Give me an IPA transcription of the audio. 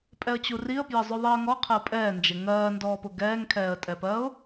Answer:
pʼ ɛ ə̯ t͡ɕ u r i ə̯ p j ə zˤ ʊ ðˤ i ə̯ ŋ ɔ qʰ ɛ ʊ̯ pʼ ɛː n d͡ʒ ɪ ŋ ɜː n d ɔː p ʊ ɡ ɛː ŋ kʰ ɛː ə̯ tʼ ɛ p ɜː ʊ̯

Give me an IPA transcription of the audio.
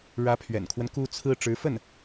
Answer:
ɻ ä˧˥ pʰ ɥ ɛ̰˨˩ n kʰ w ə˦ n k u˥ t͡sʰ ɹ̩˥ ʈ͡ʂ ɻ̩˧˥ f ə˥˩ n

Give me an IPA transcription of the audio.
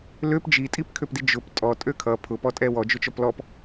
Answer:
l ø p d͡ʒ i tʼ i p kʰ ø p d i d͡ʒ ʊ p tʼ ɔ tʼ ø kʰ ʌ pʰ ʊ p ɔ tʼ ɛ w ɔ d͡ʒ ʊ t͡ʃ ɔ p l ɔ p

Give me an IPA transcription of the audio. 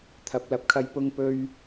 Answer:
t̪ʰ ɐ˨˥ p̚ l ɐ˨˥ p̚ kʰ ɐ˧ j p ʊ˧ ŋ p ɵ˥ ɥ

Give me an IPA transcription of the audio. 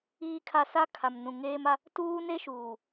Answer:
iː˨ kʰ a˨ s a˦ kʰ a˨ m n ũ˨ ŋ eː˦ m a˦ | t uː˦ n e˦ ʃ uː˨

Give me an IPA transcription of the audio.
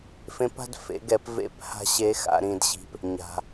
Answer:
f ẽ˧˥ p a̤˥ d f ḛ˩˧ ɡ ɛ˩˧ p v ḛ˧˥ p h a̤˥ ɕ e˧˥ x a̰˩˧ ɾ ĩ˧ d ɕ i̤˧ p | ɲ a̤˩

